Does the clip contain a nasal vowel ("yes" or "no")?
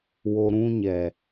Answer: yes